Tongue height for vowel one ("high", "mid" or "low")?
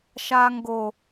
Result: low